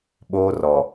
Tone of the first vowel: high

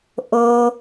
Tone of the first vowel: high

